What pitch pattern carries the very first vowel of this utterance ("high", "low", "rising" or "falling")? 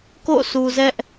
falling